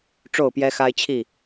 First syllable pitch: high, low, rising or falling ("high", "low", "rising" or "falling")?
falling